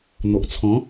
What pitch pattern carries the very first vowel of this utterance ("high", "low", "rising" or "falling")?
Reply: low